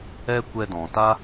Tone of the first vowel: high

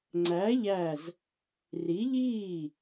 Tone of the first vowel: rising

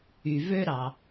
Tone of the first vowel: low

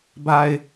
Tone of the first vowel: low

